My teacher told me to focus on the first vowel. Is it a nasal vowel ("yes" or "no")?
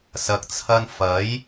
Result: no